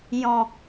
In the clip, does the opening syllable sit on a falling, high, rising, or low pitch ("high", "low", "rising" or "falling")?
low